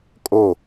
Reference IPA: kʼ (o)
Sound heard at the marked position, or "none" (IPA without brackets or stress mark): o